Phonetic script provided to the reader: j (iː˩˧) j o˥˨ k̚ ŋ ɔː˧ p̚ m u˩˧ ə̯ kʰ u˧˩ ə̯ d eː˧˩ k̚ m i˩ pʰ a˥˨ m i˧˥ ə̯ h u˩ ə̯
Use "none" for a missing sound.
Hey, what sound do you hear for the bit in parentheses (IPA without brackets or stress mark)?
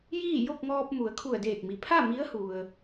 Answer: iː˥˨